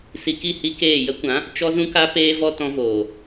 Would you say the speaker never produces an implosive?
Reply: yes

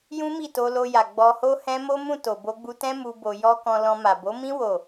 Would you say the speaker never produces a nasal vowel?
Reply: no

